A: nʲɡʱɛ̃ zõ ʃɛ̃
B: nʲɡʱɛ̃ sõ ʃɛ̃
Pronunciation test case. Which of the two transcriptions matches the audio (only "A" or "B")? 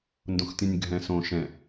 B